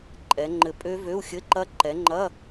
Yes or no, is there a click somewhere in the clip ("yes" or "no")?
yes